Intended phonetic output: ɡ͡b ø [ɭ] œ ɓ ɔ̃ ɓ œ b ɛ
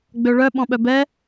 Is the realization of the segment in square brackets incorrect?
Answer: no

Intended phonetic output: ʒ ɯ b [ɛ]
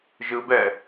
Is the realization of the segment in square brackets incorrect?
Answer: no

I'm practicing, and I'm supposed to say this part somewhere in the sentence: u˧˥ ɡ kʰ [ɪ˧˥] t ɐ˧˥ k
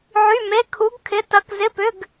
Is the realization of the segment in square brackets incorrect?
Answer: no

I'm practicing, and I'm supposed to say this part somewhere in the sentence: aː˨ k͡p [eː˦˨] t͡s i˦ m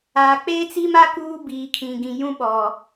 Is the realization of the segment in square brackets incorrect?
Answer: yes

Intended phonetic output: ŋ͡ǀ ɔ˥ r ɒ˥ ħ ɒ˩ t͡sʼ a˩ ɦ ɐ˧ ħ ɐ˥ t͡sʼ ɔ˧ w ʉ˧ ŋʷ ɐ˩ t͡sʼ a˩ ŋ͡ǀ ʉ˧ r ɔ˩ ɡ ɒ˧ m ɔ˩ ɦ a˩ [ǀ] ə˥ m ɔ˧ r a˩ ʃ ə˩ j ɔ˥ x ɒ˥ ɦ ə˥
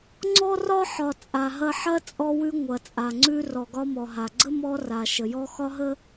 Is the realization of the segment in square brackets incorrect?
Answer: yes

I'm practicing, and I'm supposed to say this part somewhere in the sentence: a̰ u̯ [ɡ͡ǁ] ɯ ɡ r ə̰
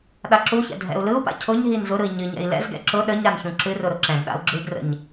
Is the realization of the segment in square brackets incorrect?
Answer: no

